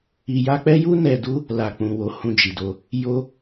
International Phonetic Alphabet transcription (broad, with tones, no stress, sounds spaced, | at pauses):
i˧ j a˧ k͡p ɛ˦ j u˦ n ɛ˧ d u˦ | l a˨ k͡p ũ˨ w o˨˦ h ũ˧ d͡ʒ i˨ d o˧ | j o˦